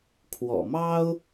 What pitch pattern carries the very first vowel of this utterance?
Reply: low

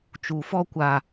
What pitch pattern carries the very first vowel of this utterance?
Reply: low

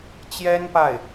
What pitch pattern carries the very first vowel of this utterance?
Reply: high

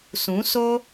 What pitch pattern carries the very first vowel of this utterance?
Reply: rising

